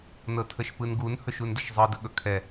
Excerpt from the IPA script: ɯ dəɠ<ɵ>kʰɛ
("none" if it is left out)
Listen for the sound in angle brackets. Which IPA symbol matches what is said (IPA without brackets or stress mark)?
ɵ